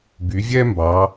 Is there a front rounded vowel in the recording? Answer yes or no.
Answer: yes